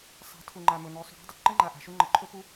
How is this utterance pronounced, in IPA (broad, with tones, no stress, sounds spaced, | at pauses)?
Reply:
sˤ a̤˨˦ tʰ u˨ ŋ͡ǃ a˨ m ɵ˨ n ɵ˨˦ sˤ ṳ˨ ɽ a̤˦ dˤ ɘ˨ ǃ ə˦ ŋ͡ǃ a˨ ʔ a̤˨ ʃ u˦ ŋ͡ǃ ə˨ ǃʰ ɵ˦ p u˦